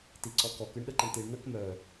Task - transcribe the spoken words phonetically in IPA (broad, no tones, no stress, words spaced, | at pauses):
tiǀɔkɔk ɨɳɗəǃəɳtiɳ nəkmœ